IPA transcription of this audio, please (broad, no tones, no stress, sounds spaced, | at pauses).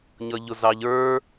ɲ ʌ ʎ ʊ z ɑ ʎ ə˞